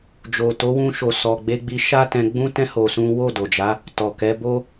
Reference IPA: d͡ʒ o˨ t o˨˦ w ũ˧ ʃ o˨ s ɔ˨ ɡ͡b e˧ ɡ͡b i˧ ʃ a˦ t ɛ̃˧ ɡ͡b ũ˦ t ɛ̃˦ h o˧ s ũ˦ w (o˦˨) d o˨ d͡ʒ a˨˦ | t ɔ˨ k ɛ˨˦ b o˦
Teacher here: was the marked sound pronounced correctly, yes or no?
yes